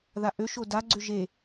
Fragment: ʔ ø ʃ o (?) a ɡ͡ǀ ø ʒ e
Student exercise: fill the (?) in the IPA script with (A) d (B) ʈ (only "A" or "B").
A